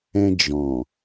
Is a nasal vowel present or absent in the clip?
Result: present